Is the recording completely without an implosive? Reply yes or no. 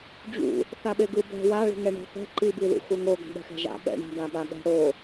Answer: no